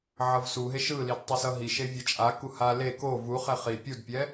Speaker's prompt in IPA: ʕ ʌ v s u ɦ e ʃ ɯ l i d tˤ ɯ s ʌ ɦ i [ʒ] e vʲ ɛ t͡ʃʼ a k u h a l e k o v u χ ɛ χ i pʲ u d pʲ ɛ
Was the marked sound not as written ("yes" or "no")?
yes